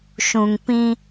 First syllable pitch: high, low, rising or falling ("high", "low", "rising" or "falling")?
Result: low